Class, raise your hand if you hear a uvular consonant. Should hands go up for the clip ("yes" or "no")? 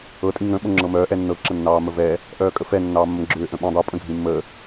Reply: no